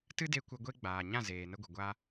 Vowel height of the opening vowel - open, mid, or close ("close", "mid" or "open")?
close